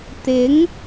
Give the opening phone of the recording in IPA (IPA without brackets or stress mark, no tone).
t̪